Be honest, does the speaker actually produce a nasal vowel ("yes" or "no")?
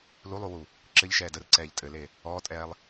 no